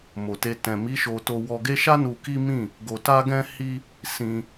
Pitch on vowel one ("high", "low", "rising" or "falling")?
low